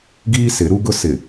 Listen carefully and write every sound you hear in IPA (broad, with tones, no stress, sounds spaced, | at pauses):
ɡ iː˦ s ɪ˨˦ ɾ u˦ ɡ ʊ˦ s ɪ˨